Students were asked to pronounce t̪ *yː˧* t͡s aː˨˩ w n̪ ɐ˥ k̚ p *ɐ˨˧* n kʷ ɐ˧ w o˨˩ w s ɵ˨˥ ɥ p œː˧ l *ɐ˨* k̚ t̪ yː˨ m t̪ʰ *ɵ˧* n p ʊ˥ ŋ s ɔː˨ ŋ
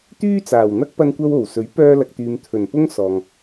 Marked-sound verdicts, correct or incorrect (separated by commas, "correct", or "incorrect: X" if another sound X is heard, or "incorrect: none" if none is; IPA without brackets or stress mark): incorrect: yː˥, incorrect: ɐ˧, correct, incorrect: ɵ˨˩